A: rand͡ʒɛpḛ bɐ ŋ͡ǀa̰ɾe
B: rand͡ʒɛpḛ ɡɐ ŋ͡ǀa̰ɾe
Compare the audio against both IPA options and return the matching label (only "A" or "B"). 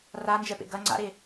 B